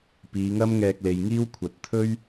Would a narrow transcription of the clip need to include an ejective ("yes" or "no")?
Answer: no